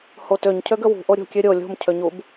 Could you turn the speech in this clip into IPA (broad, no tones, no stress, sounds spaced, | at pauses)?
h o t ø ɲ cʰ ø ɡ ə w ṳ ʔ o ɾʲ o̤ kʲ ø ɾʲ o lʲ o̤ m cʰ ø ɲ u b